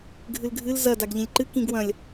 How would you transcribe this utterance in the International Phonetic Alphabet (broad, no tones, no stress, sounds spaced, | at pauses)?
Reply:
ɡʱ ɨ l ɡʱ ɨ l z ɐ d a ɡ ʎ ĩ lʲ ǃ ɨ k ĩ ɡ w ɐ̃ lʲ